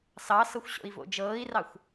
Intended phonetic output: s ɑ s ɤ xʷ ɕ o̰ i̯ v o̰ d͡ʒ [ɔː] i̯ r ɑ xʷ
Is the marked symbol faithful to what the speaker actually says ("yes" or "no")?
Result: no